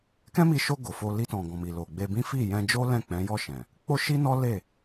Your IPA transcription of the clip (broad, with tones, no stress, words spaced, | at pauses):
kɛ̃˦mi˧ʃo˧ ɡo˨fo˧ li˧tɔ̃˨ ɡɔ̃˨mi˨ lo˨ɡ͡be˧bĩ˦ fi˦˨jɛ̃˧d͡ʒo˦ lɛ̃˦˨k͡pɛ̃˨˦jɔ˦˨ʃɛ̃˨ | k͡po˦ʃi˦nɔ˦ le˦˨